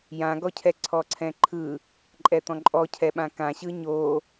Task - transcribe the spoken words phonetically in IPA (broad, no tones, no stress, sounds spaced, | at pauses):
j ã ɡ ɔ cʰ ɛ ǀʰ ɔ ǀʰ ɛ̃ ǃʰ ɯ | ǃʼ ɛ t̪ ɔ̃ ǃʼ ɔ cʰ ɛ ɓ ã k ã ɕ ɯ ɲ o